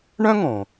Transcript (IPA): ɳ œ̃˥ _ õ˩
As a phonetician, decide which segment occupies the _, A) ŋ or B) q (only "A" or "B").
A